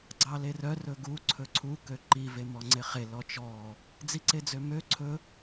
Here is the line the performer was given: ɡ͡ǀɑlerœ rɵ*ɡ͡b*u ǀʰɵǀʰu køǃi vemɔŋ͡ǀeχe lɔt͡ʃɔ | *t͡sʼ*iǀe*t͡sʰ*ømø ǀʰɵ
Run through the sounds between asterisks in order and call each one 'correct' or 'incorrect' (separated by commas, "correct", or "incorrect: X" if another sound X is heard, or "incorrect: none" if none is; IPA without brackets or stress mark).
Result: incorrect: ɡ, incorrect: d͡z, incorrect: d͡z